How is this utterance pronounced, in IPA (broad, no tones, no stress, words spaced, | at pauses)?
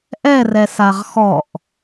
ʔɛrɛ saʁxɔʔ